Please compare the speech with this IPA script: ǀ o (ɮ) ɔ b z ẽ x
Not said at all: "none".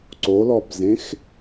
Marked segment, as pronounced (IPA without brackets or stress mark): l